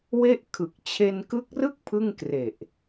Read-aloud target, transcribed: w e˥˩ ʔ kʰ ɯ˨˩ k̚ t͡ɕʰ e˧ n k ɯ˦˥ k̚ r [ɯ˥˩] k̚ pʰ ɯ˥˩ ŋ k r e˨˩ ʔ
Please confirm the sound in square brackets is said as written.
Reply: yes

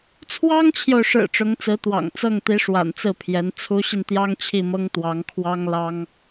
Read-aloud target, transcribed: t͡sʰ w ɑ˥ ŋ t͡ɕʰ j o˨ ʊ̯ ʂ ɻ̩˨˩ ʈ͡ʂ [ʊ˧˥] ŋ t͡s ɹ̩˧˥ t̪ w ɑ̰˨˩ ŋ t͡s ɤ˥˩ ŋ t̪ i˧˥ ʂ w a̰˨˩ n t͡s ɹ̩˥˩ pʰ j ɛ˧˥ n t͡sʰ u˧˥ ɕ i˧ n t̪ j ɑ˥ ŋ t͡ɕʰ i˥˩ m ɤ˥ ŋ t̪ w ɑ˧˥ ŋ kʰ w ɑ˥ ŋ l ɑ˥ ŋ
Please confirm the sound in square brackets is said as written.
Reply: yes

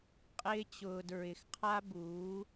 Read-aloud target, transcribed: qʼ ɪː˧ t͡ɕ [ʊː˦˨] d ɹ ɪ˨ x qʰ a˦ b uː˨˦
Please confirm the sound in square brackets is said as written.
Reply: no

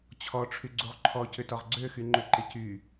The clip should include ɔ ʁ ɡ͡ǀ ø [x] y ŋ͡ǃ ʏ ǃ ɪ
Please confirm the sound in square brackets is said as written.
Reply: yes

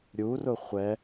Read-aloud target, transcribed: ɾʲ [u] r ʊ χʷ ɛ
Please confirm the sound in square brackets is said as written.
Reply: yes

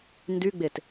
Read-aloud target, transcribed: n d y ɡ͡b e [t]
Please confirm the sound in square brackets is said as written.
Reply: yes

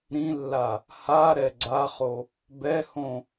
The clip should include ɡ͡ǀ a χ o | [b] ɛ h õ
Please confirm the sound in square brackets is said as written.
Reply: yes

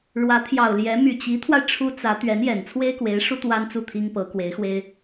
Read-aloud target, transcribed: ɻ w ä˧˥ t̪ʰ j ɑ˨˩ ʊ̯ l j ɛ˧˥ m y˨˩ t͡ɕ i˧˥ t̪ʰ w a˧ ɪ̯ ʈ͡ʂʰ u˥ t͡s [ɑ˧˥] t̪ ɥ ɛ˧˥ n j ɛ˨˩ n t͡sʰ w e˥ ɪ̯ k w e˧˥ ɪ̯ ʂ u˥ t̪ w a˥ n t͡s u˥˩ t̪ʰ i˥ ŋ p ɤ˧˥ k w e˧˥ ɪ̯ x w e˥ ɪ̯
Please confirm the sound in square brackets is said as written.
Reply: no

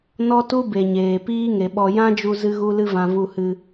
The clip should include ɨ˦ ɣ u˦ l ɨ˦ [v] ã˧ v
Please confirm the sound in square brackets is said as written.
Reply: yes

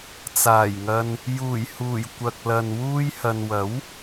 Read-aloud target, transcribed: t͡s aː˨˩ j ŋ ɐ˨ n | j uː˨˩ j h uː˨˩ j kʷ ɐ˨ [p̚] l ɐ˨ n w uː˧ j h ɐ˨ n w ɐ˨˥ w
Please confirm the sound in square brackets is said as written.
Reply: no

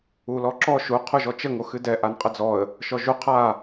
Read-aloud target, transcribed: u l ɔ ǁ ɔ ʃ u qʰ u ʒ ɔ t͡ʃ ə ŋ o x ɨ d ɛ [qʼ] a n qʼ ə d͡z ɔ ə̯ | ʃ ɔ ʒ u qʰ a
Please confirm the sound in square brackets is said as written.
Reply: no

